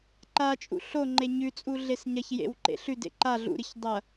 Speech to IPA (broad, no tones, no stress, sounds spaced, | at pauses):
ǃ a t͡ʃʼ ṵ ɬ o ŋ͡ǃ e ɲ ʉ t͡sʼ u ɮ e s ɲ ɐ ç j ḛ w ǃ ḛ ɬ ʉ d ḛ ǃ a ɮ ṵ ɾ ɨ ç dˤ ɐ